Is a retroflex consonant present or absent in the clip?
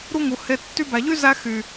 absent